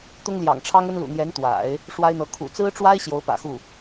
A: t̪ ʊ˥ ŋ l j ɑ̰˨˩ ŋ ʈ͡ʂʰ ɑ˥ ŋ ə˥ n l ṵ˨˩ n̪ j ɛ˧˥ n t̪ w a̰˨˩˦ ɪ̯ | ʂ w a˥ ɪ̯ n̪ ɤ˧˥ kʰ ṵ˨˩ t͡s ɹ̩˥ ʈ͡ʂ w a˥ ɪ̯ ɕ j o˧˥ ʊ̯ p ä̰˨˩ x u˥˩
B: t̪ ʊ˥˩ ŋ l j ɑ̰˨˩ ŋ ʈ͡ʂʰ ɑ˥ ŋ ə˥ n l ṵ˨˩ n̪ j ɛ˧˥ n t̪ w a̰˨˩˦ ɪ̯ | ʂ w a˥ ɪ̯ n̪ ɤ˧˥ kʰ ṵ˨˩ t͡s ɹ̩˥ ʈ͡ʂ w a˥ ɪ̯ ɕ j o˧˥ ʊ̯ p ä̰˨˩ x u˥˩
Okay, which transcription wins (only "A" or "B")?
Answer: A